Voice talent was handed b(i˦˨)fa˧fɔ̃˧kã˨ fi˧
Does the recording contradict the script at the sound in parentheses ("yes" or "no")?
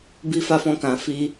yes